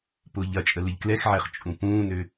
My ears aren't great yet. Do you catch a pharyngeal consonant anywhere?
yes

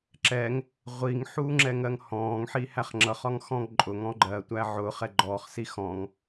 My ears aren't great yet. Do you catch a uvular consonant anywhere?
yes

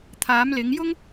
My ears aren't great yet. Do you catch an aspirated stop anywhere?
yes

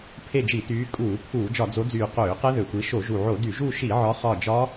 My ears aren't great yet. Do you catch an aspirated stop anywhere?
yes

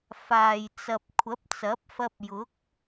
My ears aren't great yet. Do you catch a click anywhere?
no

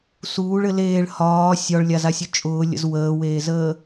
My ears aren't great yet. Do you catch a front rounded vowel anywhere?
no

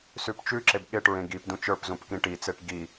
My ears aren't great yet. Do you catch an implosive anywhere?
yes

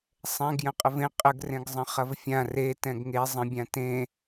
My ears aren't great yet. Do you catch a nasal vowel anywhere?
yes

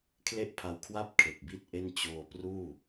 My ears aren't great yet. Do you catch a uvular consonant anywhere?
no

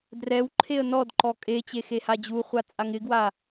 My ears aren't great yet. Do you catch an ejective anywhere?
yes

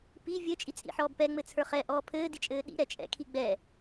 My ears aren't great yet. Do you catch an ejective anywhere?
yes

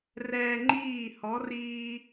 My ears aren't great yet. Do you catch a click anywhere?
yes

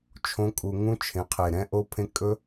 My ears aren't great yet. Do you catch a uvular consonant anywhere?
yes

